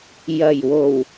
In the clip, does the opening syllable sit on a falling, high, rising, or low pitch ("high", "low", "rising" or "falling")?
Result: low